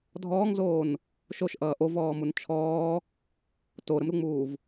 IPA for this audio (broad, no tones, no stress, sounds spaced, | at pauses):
dʱ ɔː ŋ z oː n | ʃ o ʃ ʔ ʌː ʔ o v ɔː m u n t͡ʃʰ ɔː | t o ɾ ə m ɾ u ŋ͡m uː v